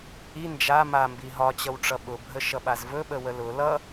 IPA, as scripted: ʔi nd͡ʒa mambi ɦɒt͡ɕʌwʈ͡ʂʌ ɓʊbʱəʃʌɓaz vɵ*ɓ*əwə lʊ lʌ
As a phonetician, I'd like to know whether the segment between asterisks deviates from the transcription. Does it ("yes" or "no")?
no